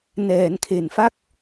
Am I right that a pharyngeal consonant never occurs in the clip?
yes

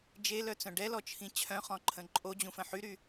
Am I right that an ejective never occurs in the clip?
no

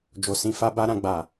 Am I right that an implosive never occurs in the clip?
yes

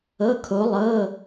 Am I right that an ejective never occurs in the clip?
yes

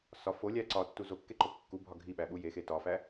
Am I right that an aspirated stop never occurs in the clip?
yes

